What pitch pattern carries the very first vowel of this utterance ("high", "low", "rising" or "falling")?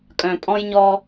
low